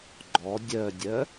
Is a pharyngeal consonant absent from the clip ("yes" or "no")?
yes